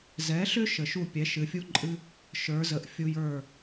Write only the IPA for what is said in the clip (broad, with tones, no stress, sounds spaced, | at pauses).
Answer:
z ɛ˩˥ ɬ ʏ˥ ʃ ə˩ ʃ u˥˩ pʲ ɛ˩˥ ʃ ɨ˩ fʲ u˥ ǃʼ ɨ˥ | ʃ ə˞˩˥ z ə˩˥ ʔ fʲ u˧ j ə˞˥˩